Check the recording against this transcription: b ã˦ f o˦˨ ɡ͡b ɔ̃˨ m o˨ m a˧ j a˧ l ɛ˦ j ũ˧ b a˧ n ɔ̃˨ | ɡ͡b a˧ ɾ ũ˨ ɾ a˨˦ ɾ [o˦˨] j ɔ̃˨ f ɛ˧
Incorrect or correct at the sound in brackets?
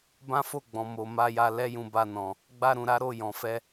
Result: correct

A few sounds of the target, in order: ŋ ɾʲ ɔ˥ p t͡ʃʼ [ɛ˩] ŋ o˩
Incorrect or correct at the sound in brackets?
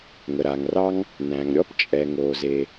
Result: correct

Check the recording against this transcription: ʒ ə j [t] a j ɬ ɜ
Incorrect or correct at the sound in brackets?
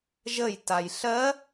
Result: correct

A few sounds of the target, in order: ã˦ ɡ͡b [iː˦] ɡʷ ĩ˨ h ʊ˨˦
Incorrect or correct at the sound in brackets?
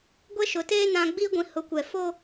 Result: correct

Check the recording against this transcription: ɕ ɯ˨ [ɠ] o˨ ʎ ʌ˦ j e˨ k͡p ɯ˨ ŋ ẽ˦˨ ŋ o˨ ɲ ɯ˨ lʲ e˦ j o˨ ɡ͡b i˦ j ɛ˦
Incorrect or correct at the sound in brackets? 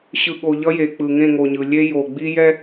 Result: correct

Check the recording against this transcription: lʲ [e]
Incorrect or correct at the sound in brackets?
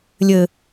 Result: incorrect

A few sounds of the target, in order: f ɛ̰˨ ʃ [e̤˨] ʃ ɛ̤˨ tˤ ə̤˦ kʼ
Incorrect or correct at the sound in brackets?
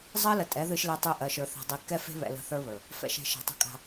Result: correct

